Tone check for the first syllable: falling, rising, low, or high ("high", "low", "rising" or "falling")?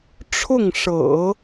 falling